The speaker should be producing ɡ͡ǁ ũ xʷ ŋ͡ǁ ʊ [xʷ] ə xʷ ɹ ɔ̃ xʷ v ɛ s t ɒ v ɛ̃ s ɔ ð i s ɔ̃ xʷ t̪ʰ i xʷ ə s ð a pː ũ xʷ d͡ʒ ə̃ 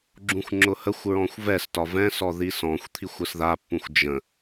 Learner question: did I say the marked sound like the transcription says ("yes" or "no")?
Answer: no